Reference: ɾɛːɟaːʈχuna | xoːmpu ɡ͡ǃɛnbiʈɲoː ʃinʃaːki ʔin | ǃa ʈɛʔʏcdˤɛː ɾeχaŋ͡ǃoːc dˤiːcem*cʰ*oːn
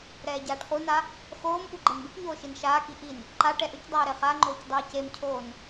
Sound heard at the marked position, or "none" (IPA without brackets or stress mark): cʰ